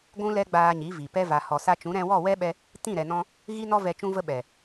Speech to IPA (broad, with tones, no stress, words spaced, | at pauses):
ɡʷũ˦lɛ˦ ɡ͡baː˧ɲi˨˦vi˨ pɛ˧va˨hɔ˨sa˧ t͡ʃũ˨˦ɾɛ̃˧wɔ˦˨ wɛ˦ɓɛ˧ | tĩ˦˨ɾɛ˨nɔ̃˧ | ɣi˦nɔ˦ vɛ˧t͡ʃũ˦və˦ ɓɛ˨